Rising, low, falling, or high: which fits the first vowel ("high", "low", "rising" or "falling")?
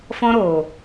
high